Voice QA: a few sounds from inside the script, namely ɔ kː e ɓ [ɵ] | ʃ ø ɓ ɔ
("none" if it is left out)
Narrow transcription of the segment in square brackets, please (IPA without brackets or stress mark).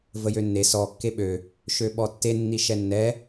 ø